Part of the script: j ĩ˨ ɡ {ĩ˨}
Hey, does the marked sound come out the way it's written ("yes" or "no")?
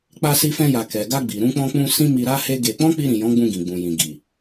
no